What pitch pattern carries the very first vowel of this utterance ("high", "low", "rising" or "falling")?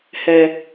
low